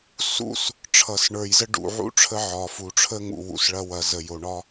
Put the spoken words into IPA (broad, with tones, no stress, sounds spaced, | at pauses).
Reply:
s ṵ˦˨ s | ʈ͡ʂʰ ʌ˨ s ɳ ə˞˨ j z ə˦ ɖ ṵ˨ ʕ ṵ˦ ʈ͡ʂʰ ə˦ ʕ ɒ˨ f u˨ ʈ͡ʂʰ ə˦ ŋ ṵ˨ w ṵ˨ s ɭ ɐ˦ w ɐ˨ z ə˨ j o˨ ɳ ɒ˦